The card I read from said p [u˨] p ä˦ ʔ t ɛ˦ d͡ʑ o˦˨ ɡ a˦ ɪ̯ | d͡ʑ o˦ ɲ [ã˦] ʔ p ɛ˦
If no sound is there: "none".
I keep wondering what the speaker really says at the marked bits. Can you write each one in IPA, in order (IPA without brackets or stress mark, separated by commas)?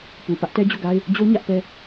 u˨, ä˦